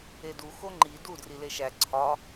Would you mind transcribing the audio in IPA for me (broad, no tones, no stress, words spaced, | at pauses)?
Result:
edu xoŋ͡ǃi du drileʃæ ǀʰɒ